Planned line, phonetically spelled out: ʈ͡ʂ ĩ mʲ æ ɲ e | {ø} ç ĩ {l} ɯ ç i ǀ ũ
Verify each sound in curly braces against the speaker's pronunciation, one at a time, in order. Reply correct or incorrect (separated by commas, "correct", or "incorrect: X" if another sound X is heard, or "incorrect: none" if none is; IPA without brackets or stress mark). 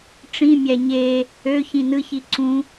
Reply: correct, incorrect: n